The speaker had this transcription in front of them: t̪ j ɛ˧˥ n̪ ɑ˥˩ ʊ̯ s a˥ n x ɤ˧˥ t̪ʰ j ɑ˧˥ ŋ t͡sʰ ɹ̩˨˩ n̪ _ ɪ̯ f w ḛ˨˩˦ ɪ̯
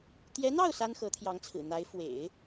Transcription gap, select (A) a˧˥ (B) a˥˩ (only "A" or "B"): A